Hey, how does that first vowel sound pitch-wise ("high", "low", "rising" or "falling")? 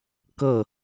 falling